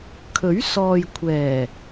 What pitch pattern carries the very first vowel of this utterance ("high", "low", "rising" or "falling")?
rising